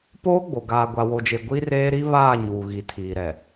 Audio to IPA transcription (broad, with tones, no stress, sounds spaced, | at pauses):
p oː˦ ɡ͡b o˨ ɡ aː˨ ɡʷ a˨ w o˨ d͡ʒ e˨ ɡʷ i˦ r eː˦ ɾ i˦ β aː˦˨ ɲ uː˨ ɣ i˨ tʰ iː˨ ɾ ɛ˨